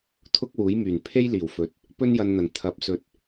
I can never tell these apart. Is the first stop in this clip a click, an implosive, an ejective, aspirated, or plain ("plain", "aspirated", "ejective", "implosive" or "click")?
aspirated